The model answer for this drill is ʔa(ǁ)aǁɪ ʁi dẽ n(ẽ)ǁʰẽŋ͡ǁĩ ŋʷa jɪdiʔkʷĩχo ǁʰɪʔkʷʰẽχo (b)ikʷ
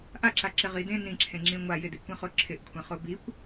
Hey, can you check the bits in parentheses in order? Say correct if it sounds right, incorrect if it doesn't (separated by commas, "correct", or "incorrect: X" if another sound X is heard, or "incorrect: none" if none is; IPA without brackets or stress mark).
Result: correct, incorrect: ĩ, correct